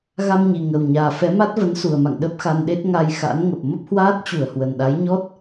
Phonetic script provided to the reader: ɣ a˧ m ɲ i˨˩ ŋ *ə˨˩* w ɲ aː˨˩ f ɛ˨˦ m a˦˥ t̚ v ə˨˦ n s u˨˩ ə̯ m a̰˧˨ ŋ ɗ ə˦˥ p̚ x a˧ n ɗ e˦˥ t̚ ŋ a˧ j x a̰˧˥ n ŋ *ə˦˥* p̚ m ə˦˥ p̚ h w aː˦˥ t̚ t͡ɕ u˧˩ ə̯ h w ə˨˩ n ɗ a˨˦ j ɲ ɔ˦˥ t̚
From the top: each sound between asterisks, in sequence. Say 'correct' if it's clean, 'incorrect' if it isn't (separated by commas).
correct, incorrect